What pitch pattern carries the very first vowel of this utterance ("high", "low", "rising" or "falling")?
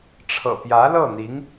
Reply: low